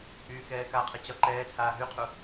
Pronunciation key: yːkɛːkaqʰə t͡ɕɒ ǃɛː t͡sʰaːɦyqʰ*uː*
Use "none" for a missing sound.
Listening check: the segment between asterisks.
u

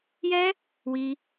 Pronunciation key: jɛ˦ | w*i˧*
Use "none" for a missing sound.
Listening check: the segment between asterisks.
i˧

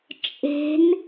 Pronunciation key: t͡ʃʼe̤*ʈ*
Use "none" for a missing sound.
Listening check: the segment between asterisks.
n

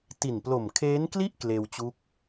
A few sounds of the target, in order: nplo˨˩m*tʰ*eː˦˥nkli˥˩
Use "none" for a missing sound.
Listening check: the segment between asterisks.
kʰ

